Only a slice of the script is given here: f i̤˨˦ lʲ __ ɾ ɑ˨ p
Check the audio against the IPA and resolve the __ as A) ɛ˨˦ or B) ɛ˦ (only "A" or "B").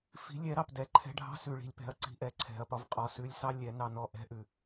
A